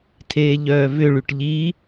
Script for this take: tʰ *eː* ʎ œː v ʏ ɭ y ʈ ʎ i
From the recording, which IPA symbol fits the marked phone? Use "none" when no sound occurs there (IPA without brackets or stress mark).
eː